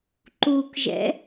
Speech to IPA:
ǃukʒɛ̰

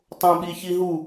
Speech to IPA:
tˤõɓiçiɦu

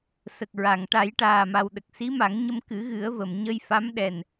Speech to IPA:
sə˨˩k̚ ɹa˨˩˨ŋ ʈa˨˩˦jʈaː˨˩ma˨˩wɗə˨˩k̚ si˧˥ma˨˩˦ŋɲə˧m kɨ˨˩˦ɣɨ˨˩˦ə̯və˨˩˨m ɲə˧jfa˧˥m ɗɛ˨˩n

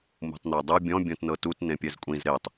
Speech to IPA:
mṳtˤnɛdˤɯ bʲɔ̃ bʲõtnɤtut nẽpʲɛzkʷʼĩz ɾetˤ

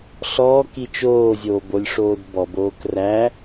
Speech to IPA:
ɬɔːki t͡ʃoːzʲoːbolʲʂoːd bɔboːk ræ

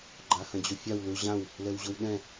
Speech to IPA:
ɡ͡ǃahɐ̃d͡ʑofʲaw lu ʑãw | lɛwʑowɗɛ̃

